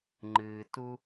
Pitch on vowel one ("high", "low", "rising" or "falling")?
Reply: low